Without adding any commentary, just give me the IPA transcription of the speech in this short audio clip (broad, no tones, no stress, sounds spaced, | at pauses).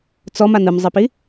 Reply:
t͡s ɔ m a n ɯ m zˤ ɛ p i